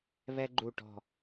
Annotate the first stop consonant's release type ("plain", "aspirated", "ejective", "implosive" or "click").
click